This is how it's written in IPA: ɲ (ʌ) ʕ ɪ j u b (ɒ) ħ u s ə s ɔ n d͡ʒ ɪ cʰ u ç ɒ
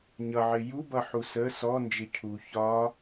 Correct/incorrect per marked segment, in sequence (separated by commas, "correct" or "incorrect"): correct, incorrect